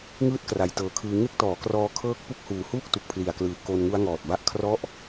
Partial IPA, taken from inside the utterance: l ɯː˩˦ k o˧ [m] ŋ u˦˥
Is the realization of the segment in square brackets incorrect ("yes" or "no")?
yes